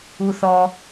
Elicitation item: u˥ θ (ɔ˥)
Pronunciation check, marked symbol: correct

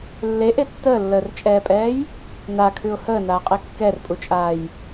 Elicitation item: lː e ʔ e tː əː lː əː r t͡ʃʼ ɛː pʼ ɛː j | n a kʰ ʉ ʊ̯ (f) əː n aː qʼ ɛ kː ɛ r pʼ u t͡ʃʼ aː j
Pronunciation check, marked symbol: incorrect: h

